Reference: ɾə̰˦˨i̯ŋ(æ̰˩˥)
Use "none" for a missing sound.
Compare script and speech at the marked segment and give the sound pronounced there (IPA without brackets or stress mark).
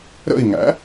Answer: æ̰˩˥